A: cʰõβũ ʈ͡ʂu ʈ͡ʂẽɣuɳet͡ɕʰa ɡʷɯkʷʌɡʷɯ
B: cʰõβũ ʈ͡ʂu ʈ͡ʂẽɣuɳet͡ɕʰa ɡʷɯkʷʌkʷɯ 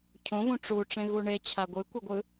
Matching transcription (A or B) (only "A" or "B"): A